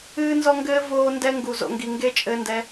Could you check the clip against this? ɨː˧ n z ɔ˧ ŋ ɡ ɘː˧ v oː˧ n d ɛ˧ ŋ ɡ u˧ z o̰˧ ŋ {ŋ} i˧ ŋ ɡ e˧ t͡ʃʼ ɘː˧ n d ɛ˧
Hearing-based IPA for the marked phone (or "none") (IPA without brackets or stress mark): ɡ